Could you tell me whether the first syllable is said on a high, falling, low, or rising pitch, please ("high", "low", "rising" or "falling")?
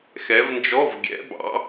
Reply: rising